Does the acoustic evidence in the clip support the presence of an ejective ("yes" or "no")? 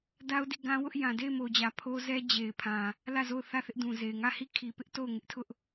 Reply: no